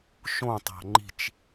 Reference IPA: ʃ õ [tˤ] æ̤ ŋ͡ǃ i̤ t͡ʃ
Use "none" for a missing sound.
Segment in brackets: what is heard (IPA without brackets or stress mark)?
tˤ